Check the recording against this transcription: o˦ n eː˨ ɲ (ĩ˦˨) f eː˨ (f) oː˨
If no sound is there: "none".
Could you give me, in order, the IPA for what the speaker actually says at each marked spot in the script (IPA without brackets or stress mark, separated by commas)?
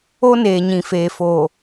ĩ˨, f